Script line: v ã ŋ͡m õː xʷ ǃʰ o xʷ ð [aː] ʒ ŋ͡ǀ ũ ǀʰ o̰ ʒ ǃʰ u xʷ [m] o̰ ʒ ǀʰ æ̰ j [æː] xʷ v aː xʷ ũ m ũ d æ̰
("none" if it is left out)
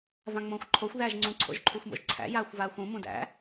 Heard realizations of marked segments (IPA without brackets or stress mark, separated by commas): æː, m, aː